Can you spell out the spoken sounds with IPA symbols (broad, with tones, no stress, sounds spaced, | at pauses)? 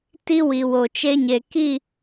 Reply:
t i˦ w i˨ w o˨ t͡ʃ e˦ ɲ e˨ k i˦˨